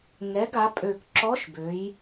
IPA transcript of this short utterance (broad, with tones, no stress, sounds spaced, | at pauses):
ŋ ɛ˩˧ ɡ a˩˧ pʼ ø˨˩ k ǁ ɔ˧˥ ʃ b ø˩˧ j